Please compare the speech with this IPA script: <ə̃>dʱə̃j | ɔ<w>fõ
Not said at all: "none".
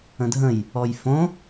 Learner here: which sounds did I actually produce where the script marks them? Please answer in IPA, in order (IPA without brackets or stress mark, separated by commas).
ə̃, j